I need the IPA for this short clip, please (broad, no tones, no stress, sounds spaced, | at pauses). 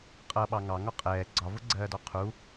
qʼ ʌ ɓ ɑ ŋ ɑ ŋ ɒ qʼ ɛː ɡ͡ǀ ɒ v ʊ ɡ͡ǀ ɜː d ɔ qʰ u